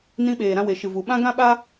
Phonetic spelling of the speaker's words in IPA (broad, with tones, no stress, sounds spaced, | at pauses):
n ĩ˧ ɓ eː˨ ɾ ã˧ w e˨ ʃ ɨ˨ v u˨ ɓ ã˦ ɡ ã˦ ɓ a˦